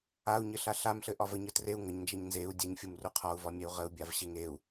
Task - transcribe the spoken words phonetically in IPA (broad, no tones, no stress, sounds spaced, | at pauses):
a u̯ ɲ ɘ ɬ a ɬ a m ɬ ɘ ʔ ɒ v ə ɲ ə t r e u̯ ŋ ə ɲ n d͡ʒ ɛ ɲ n z e u̯ dʲ ɛ ɲ fʲ u m r u qʰ ɒ u̯ v ɒ mʲ ɛ u̯ ʁ ə u̯ bʲ a v ɕ e ŋ e u̯